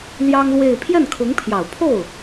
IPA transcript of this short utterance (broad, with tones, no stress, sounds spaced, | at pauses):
l j ɑ˥ ŋ l w e˥˧ ɪ̯ pʰ j ɛ˥˩ n kʰ ʊ˧˥ ŋ pʰ j ɑ˨˩ ʊ̯ pʰ o˥˩ ʊ̯